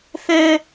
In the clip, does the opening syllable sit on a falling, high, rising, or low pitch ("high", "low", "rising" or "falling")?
high